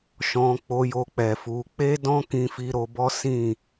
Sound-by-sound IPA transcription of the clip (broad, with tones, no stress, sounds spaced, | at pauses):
ʃ ɔ̃˧ k͡p o˧ j o˧ k͡p ɛ˨ f u˧ k͡p e˦ d ɔ̃˦ k ĩ˧ f i˧ ɾ o˧ b ɔ˦ s ĩ˦˨